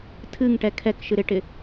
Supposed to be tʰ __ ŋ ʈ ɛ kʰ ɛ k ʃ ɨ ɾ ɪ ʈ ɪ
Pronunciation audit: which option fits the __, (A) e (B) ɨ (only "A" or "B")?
B